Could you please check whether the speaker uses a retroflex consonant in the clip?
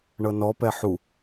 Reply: yes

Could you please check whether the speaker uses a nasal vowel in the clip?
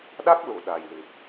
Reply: no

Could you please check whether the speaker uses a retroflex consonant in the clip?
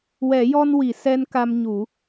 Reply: no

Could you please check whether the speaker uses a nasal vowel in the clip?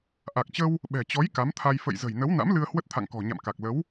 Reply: no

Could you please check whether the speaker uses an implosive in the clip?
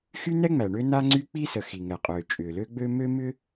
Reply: no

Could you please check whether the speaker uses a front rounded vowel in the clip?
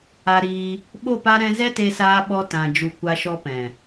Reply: no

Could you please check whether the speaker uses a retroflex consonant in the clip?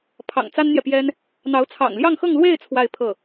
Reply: no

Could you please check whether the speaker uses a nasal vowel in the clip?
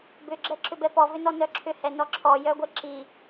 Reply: no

